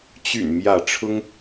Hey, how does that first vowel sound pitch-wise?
low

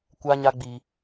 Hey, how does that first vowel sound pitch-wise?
high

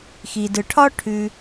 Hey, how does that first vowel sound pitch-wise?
low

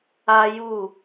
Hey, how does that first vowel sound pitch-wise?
high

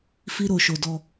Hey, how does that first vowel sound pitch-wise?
high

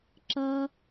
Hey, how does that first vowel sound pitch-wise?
high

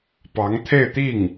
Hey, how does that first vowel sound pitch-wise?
rising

